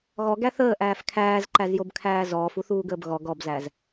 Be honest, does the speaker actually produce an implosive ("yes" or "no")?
no